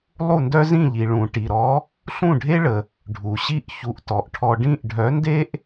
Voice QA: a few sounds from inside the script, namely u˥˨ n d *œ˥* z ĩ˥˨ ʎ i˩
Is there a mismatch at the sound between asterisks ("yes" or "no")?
no